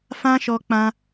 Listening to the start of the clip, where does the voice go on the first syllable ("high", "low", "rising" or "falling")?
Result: high